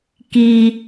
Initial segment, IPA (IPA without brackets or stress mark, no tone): k